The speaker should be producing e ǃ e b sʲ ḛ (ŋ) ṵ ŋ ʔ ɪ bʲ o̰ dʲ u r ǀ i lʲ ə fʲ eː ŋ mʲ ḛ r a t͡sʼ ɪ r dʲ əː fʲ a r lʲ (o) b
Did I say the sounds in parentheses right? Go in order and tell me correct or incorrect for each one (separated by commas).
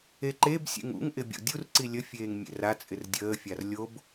correct, correct